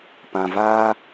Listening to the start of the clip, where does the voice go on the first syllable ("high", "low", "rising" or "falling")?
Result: low